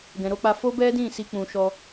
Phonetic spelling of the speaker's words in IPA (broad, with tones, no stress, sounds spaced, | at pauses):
ɡ ɛ̃˨ ɾ o˧ k͡p a˧ f o˦ b ɛ˦ d ĩ˦˨ s i˧ k͡p ũ˧ ʃ ɔ˦